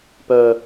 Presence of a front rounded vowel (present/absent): present